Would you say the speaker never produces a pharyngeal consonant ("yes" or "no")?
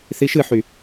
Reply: no